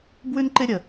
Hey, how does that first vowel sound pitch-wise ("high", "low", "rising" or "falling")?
high